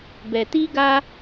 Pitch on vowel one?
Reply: low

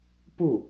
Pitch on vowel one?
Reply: falling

